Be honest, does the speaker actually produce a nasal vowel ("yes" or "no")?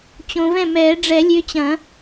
yes